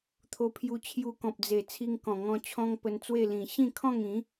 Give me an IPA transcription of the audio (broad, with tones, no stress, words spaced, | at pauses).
t̪ʰo˧pʰju˧ t͡ɕʰju˧kɔ̃˨p̚d͡ze˨˩ t͡sʰi˧ŋkɔ̃˨˩ŋɔ̃˧ t͡ɕʰɔ̃˦ŋpə˧nt͡swe˥˧lĩ˨˩ ɕĩ˥˧kʰɔ̃˥˧ŋĩ˨˦